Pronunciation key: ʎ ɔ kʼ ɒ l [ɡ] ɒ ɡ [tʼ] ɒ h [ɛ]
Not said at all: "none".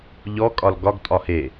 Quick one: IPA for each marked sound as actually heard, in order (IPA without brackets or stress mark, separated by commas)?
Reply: ɡ, tʼ, e